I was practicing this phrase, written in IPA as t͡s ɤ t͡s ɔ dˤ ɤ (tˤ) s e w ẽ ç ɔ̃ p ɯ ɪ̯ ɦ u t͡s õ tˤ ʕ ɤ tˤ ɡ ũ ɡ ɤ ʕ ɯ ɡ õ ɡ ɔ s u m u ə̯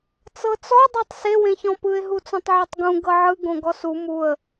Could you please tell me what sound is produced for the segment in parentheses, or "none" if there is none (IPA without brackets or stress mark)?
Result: tˤ